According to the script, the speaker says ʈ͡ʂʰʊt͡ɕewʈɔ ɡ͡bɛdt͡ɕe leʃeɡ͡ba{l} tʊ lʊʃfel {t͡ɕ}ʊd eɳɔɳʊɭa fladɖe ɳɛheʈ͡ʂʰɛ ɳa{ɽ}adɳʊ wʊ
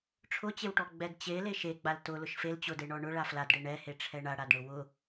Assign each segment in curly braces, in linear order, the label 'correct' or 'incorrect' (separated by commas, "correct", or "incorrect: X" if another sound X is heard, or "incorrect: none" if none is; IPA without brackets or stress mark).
correct, correct, correct